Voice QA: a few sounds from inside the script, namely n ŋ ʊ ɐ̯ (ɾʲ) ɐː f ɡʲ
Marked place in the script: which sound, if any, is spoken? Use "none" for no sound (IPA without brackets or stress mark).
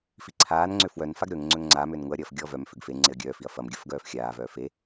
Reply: ɾʲ